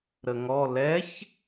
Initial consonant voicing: voiced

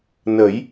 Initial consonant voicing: voiced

